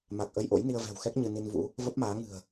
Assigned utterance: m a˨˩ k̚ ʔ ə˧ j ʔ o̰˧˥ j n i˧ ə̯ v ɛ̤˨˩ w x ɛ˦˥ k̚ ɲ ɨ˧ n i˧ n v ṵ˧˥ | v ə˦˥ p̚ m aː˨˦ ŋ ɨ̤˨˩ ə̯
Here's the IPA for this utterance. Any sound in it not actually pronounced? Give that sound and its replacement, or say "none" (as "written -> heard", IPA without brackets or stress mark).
none